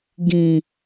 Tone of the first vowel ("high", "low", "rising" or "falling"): low